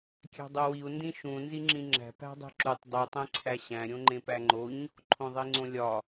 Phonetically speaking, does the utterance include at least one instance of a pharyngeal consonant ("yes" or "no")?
no